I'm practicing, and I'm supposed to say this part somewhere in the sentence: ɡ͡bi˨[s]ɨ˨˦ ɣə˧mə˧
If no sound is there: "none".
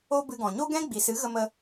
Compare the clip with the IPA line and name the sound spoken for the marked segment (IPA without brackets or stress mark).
s